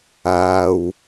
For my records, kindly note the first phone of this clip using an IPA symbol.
aː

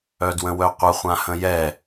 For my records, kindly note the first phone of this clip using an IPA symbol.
œ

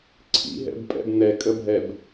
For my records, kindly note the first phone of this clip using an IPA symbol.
ǀʰ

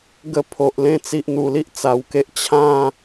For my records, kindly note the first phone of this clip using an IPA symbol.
ɡ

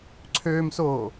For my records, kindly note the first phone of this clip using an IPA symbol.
ǀʰ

